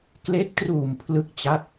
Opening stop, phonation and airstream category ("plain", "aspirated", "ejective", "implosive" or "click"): plain